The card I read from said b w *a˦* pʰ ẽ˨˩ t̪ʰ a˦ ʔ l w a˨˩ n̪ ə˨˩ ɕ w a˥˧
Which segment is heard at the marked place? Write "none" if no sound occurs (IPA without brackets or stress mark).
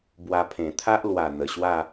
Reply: a˧